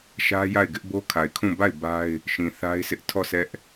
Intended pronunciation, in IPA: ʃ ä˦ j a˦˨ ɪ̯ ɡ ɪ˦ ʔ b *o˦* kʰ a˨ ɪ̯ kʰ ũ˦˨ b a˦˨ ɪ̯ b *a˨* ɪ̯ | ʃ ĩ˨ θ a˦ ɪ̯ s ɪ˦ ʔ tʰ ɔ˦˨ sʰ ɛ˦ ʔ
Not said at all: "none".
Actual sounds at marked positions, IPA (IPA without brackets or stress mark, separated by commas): o˦, a˦